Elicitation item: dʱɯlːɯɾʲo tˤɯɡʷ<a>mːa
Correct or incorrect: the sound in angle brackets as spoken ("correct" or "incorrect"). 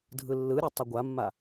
correct